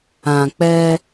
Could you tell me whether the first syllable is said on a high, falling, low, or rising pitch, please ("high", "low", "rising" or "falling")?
low